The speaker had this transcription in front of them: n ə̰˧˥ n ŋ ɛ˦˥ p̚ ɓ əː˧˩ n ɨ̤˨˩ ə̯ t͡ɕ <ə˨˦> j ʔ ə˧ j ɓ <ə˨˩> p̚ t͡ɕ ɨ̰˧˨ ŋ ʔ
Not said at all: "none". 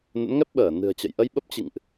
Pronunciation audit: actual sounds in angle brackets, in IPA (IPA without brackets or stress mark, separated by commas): ə̰˧˨, ə˦˥